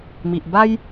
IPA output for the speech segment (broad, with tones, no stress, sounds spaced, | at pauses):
m i˨ ʔ b a˦ j